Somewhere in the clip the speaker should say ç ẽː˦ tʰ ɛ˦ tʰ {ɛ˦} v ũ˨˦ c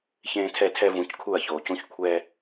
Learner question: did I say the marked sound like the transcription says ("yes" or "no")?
yes